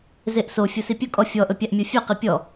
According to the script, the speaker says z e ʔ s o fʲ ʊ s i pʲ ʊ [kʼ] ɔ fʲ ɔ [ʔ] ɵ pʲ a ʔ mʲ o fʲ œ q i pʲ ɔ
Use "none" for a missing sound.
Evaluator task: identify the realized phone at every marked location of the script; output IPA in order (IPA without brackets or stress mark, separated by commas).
kʼ, ʔ